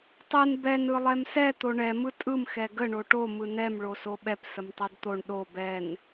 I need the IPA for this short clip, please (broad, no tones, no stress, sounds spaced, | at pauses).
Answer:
tˤ ɯ n b ɛ n ɯ lˠ ɛ m s ɛ t̪ o ɳ ɛ m ɯ tʼ ɯ m x ɛ ɡ ə ɳ o ʈ o m ɯ n ɛ m ɭ o s o ɓ ɛ p s ə m tˤ o d t̪ o ɳ ɗ o b ɛ n